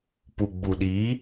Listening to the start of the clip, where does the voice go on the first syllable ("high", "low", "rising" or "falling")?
low